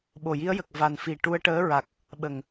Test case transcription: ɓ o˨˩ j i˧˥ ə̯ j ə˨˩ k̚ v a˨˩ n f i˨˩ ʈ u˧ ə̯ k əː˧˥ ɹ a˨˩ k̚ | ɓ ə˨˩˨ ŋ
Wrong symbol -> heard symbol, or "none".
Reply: k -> ʈ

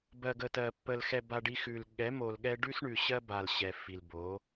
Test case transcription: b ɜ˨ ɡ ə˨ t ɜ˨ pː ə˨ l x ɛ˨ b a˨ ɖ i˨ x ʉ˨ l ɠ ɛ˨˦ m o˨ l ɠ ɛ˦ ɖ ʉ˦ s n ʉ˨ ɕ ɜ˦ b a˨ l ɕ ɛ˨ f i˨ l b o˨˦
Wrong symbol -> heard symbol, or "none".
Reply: n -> ɳ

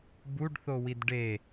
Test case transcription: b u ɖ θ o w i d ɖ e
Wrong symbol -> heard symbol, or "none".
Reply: none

